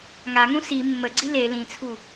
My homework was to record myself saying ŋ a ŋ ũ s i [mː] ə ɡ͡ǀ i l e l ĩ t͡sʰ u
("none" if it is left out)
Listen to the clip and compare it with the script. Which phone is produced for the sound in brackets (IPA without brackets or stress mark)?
mː